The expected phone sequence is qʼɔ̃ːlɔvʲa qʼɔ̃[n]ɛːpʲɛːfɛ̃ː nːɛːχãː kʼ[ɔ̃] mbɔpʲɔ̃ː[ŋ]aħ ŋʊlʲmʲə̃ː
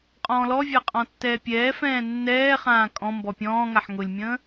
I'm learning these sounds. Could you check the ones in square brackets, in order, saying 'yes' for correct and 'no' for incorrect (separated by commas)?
no, yes, yes